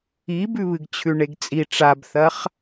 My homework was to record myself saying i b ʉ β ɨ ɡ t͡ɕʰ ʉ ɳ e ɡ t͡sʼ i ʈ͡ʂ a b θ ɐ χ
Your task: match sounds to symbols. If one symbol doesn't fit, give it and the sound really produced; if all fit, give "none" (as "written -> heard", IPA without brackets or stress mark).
none